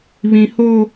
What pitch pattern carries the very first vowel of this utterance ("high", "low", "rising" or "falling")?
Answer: high